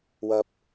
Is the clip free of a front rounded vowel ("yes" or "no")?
yes